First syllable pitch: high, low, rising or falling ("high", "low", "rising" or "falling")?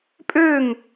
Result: falling